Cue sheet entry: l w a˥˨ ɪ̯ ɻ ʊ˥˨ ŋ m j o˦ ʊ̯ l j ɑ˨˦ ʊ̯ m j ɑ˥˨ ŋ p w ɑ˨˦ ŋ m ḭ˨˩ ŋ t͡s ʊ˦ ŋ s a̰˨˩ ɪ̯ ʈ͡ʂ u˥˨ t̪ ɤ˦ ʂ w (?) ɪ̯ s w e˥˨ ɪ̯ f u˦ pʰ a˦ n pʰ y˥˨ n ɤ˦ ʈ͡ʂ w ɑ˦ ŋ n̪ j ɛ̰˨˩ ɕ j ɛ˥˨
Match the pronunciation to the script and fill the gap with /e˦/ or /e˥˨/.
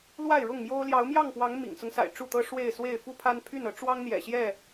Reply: e˥˨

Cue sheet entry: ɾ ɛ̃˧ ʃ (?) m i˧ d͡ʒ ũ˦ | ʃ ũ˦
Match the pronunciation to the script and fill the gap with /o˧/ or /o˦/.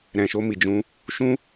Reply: o˦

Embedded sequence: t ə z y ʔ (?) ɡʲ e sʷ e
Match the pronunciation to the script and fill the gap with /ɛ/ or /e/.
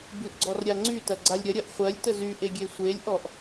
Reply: e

